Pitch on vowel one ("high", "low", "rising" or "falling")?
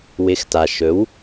rising